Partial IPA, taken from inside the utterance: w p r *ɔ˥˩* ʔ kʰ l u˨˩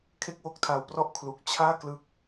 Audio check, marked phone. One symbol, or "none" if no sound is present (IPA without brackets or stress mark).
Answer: ɔ˥˩